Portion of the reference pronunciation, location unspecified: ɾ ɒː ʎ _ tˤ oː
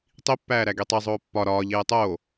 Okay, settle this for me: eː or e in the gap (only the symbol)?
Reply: eː